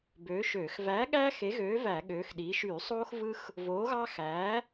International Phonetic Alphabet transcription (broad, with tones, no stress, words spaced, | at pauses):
bøː˨˥ʃøː˧˩˧x væː˨˥ɠæ˦ xe˨˥ɣøː˨˥væ˧˩˧ ɠøː˨˥xɗiː˨˥ ʃyː˧˩˧sˤoː˦xvɯ˦x | voː˨˥ɣɑ˦ xæː˨˥